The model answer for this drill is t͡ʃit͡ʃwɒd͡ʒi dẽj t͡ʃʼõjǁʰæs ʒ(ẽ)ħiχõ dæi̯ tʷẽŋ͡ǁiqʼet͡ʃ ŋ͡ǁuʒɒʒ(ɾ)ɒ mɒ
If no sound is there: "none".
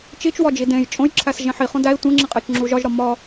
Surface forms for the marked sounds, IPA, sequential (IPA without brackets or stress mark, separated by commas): ẽ, ɾ